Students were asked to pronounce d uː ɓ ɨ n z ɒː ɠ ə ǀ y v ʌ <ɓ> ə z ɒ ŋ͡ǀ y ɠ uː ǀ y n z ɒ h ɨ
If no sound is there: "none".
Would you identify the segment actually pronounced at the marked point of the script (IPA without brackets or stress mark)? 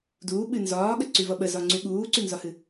ɓ